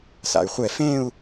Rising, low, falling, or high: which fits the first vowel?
low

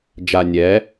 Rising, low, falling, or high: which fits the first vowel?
low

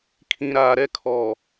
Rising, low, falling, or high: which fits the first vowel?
low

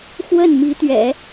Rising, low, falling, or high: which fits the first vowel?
falling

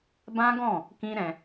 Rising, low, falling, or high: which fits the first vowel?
high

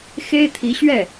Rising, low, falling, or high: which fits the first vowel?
high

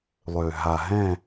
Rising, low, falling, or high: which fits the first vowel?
low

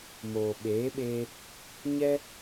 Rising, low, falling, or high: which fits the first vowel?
low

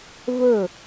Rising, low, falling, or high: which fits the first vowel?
falling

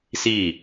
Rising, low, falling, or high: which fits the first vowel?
falling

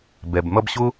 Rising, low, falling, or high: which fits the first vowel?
low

